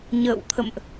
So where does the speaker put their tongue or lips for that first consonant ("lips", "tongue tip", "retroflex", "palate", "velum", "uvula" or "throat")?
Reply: palate